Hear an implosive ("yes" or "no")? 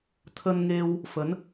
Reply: no